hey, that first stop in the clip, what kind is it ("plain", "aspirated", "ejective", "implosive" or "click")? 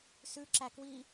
click